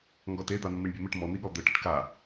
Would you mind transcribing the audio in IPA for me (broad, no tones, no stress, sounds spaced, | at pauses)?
ŋ ɡ ɔ t e d̪ a n̪ ə m i ɳ bʲ e m ɪ ʈ m ɔ n̪ i ɠ ɔ d̪ ə ʈ ə ʈ k a